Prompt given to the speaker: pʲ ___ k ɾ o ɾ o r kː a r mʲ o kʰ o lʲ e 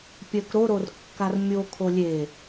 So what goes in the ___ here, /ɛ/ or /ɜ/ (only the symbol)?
ɜ